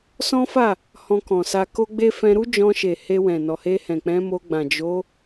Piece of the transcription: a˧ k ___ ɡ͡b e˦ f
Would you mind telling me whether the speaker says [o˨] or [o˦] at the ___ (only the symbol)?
o˦